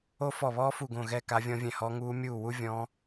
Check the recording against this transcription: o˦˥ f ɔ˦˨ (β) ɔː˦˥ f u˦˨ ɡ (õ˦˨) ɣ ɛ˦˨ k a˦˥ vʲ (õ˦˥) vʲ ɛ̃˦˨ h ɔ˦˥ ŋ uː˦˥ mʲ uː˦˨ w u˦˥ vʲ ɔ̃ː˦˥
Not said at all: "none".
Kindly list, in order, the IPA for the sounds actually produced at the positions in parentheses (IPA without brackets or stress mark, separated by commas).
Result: β, õ˦˨, ɔ̃˦˥